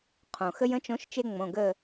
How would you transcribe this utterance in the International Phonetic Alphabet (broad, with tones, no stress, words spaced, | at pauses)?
qʰõ˩ xə˦jə̃˨˥t͡ʃõ˨˥ʃt͡ʃe˦ ŋ͡mõ˩˧˩ɡə˦˨